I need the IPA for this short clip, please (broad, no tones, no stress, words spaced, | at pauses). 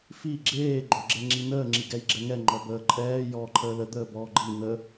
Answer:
fi ɡ͡ǁeː ɡ͡ǃoɡ͡ǁɛŋ͡ǁinəː ŋ͡ǁiɡɛjɡ͡ǁɛŋɛ ŋ͡ǃɔbəːǃʼɛː jɔːǃʰəːlə d̪əːbɔːɡ͡ǃi nə